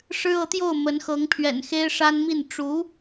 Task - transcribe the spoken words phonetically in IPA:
ʂ ɻ̩˥ ɤ˧˥ t̪ j o˥˩ ʊ̯ m ə˧˥ n x ɤ˧˥ ŋ pʰ ɥ ɛ̰˨˩ n x e˥ ɪ̯ ʂ a˥ n m i˥˩ n ʈ͡ʂ u˧˥

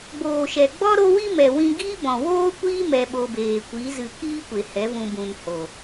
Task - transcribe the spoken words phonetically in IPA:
ɡ͡b oː˨ ʃ ɛ˨ ɡ͡b ɔ˦ ɾ o˦ w i˦ m ɛ˨ w ĩ˧ ɡ iː˦ b ɔ̃˨ w oː˦ kʷ iː˦ m ɛ˧ ɓ o˧ b eː˨ kʷ i˨˦ z ɨ˧ k iː˦ kʷ e˨ h ɛ˨˦ v ũ˧ b ũ˨ n h o˨

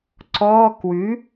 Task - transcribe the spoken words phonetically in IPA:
ǀ ɔ k w ʉ

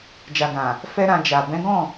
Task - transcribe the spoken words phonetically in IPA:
d͡ʒ a˨ ɡ ã˨ | f ɛ˦ ɾ ã˧ d͡ʒ a˨ b ɛ̃˨˦ ɡ ɔ̃˦˨

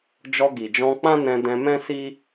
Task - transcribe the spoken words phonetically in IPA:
d͡ʒ ɔ˧ ɡ i˨ d͡ʒ ɔ̃˧ k͡p ã˦ n ɛ̃˧ d ɛ̃˧ m ɛ̃˦ s i˦

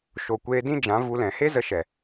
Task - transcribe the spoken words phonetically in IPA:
ʃ o˨ kʷ eː˧ d ĩ˦ d͡ʒ ã˨˦ v u˧ l ɛ̃˨ h e˦ z ə˧ ʃ ɛ˨

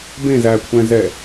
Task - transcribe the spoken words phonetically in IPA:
b ẽ z æ kʷʰ ɛ̃ z ɛ

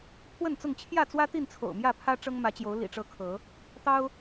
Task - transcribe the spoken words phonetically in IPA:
pʰ w ə˥˨ n t͡s ʊ˥˨ ŋ t͡ɕʰ j ä˥˨ t͡s w ä˦ t̪ i˥˨ n t͡sʰ o̰˨˩ ʊ̯ m j ä˥˨ pʰ ä˦ ʈ͡ʂ ɤ˦ ŋ m ä˨˦ t͡ɕ j o˨˦ ʊ̯ l ḭ˨˩ ʈ͡ʂ ɤ˨˦ kʰ ɤ˨˦ | t̪ ɑ˦ ʊ̯

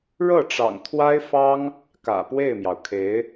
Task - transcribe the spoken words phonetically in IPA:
ɻ ɤ˥˩ ʈ͡ʂ ɑ̰˨˩ ŋ t̪ʰ w a˥ ɪ̯ f ɑ˥ ŋ | k ä̰˨˩ p w e˥˩ ɪ̯ m j ɑ˩ ʊ̯ kʰ e˧˥ ɪ̯

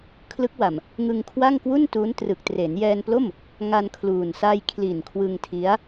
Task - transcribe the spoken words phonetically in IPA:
kʰ l ɯ˦˥ k̚ w a˨˩ m | ŋ ɯ˧ ŋ kʰ w a˥˩ ŋ k w u˥˩ n t u˦˥ n t r ɯ˨˩ k̚ t r e˩˦ n j ɛː˧ n p l o˥˩ m | ŋ a˧ n kʰ l uː˨˩ n s a˧ j kʰ l i˨˩ n kʰ w ɯ˧ ŋ tʰ i˦˥ a̯

